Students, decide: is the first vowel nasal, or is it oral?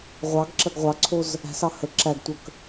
oral